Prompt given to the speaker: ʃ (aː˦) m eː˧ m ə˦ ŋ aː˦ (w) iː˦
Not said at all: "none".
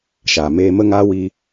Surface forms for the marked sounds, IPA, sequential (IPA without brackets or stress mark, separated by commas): aː˨, w